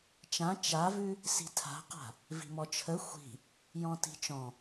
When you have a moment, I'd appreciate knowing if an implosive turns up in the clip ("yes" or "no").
no